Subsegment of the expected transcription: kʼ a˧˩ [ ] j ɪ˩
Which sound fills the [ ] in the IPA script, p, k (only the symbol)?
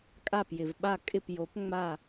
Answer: p